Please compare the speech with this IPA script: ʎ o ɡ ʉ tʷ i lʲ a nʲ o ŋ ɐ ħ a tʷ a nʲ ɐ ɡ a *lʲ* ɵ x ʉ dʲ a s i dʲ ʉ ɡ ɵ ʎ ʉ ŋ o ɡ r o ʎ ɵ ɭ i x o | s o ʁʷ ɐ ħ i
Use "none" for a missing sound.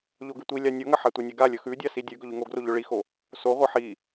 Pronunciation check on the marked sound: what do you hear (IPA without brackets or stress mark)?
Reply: lʲ